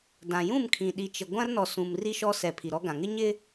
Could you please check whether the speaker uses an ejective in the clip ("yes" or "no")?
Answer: no